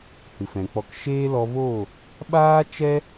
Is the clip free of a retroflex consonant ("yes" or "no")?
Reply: yes